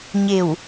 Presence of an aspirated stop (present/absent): absent